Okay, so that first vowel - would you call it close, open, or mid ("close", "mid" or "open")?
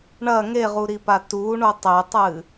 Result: open